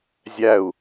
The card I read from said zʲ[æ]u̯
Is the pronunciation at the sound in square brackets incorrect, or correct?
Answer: correct